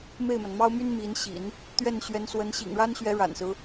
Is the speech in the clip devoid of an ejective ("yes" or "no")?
yes